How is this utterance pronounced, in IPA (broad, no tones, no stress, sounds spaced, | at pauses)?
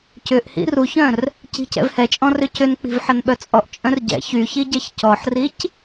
c ʏ ʔ h ḭ r u ç œ̃ r | c i̤ c ɛ̰ v h ɛ t͡ʃʼ ɔ̃ r ʏ c ʏ n k͡p i̤ v ħ ɐ n ɓ œ t͡sʼ ɔ ʔ t͡ʃʼ œ̃ r ɟ ɛ̰ ç y ç i ɟ ɛ ç c ɔ ħ r i c